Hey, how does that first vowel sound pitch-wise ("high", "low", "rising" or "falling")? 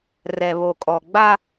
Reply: low